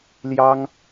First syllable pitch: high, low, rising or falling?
high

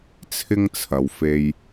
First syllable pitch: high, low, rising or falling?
high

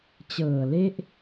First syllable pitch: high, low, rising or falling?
low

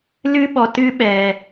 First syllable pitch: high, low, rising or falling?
high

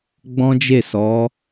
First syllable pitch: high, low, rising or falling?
high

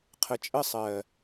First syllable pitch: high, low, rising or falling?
low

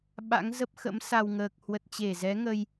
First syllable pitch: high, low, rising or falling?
rising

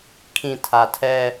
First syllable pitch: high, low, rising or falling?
low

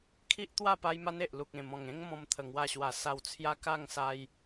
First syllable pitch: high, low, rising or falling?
high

